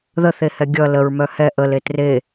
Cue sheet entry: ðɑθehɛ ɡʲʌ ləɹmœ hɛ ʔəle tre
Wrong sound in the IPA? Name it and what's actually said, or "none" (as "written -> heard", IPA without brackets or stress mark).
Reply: ɑ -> ə